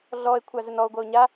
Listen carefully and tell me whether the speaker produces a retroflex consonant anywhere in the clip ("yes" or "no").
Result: no